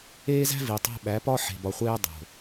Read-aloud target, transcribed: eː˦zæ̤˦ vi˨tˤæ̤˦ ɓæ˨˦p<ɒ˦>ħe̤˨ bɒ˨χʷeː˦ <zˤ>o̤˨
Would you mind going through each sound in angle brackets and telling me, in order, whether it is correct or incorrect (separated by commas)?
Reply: correct, incorrect